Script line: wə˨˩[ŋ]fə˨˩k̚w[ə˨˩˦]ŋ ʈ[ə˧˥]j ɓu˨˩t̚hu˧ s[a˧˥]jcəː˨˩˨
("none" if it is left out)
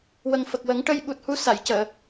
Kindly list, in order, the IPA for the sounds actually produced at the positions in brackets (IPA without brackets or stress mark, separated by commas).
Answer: ŋ, ə˨˩˦, ə˧, a˨˩˨